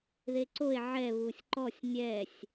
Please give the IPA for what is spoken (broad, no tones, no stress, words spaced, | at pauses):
ðeǀoe̯ ʕɛ βusʲǃɔsʲ nʲɛsʲ